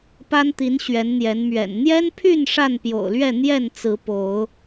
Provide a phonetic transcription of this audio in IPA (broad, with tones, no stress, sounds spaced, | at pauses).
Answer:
p a˦ n t̪ i˨˦ n ɕ ɥ ɛ˨˦ n n̪ j ɛ˨˦ n m ɥ ɛ̰˨˩ n n̪ j ɛ˦ n pʰ y˥˨ n ʂ a˥˨ n p j o̰˨˩ ʊ̯ l ɥ ɛ˥˨ n̪ j ɛ˥˨ n t͡s ɹ̩˨˦ p o˨˦ ʊ̯